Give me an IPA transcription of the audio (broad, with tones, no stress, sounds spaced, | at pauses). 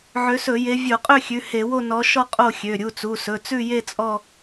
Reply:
ʕ ø˨˦ s ɵ˧˩˧ j e˨˦ vʲ o˧˩˧ qʼ ø˥˧ xʲ ʉ˩˧˩ h e˧˩˧ w o˥˧ n ɔ˨˦ ʃ ɔ˥˧ qʼ o˥˧ xʲ ø˩˧˩ ɾʲ u˩˧˩ t͡s u˩˧˩ s ɵ˩˧˩ t͡s ʉ˥˧ j e˥˧ t͡sʼ ɔ˥˧